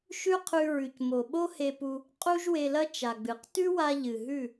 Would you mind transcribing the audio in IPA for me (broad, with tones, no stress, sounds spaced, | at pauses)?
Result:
ʃ ʉ˦ qʰ ʉ˧ ɹ ʉ˨ c m o˨ ɓ o˦ h e˧ p u˧ | qʼ u˦ ʒ w e˧ l ɐ˦ t͡ʃ a˨ ɡ͡b ɨ˨˦ q t ʉ˦ w a˧ ʎ ɨ˨ ɦ ʉ˦˨